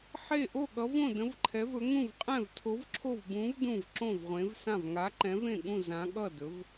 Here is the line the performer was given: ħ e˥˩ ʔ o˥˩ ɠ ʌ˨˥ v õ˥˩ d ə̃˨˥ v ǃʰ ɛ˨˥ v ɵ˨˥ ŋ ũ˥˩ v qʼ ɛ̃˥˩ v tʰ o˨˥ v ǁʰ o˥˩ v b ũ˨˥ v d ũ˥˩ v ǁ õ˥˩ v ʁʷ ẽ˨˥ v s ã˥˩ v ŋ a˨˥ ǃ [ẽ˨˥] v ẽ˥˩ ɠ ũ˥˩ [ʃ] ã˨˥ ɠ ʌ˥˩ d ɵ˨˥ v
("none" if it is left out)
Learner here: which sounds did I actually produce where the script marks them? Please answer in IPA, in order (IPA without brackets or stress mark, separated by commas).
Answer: ɛ̃˨˥, z